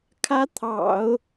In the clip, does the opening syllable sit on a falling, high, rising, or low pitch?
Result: high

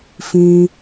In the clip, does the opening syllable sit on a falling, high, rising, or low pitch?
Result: high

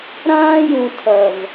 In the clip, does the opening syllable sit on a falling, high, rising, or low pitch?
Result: high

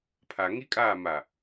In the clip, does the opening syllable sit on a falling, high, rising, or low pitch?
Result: low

